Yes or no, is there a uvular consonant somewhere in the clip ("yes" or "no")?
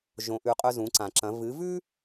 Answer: yes